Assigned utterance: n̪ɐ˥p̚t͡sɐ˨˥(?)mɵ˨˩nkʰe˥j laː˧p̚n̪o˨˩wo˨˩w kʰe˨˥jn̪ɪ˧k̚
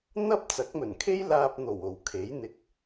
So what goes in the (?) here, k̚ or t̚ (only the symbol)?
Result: k̚